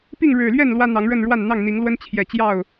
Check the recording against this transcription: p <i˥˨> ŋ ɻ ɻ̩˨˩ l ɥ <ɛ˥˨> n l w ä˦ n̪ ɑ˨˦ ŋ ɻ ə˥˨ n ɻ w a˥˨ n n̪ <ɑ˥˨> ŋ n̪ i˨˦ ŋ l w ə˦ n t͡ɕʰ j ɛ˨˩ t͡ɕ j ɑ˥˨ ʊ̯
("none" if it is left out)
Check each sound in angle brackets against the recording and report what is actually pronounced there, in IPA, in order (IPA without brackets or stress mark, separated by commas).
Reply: i˥˨, ɛ˥˨, ɑ˥˨